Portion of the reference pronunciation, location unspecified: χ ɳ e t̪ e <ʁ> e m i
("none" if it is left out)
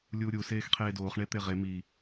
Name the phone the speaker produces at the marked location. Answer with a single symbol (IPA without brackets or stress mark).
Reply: ʁ